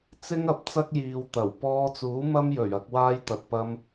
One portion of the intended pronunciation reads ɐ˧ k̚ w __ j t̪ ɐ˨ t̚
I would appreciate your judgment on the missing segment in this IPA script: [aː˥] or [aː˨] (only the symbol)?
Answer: aː˥